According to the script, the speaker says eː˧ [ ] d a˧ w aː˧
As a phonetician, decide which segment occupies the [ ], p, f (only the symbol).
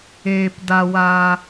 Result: p